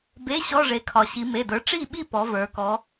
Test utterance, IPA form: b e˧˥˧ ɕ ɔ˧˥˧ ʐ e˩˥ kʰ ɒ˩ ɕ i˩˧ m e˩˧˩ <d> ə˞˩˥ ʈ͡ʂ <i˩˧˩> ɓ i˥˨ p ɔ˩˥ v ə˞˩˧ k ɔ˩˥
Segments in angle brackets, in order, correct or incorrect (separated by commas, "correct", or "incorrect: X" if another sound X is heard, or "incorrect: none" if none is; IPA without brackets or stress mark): correct, incorrect: i˥˨